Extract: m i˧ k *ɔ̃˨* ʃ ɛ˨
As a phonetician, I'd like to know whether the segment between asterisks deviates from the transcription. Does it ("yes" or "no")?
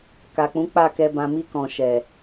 no